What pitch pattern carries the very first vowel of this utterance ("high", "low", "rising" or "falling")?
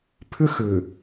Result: high